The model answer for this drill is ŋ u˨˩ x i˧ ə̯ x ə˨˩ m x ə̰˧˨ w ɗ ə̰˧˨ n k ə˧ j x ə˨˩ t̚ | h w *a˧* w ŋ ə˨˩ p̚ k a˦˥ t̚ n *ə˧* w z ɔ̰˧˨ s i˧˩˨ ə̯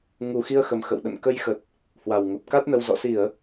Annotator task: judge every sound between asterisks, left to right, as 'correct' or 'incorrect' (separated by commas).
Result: incorrect, correct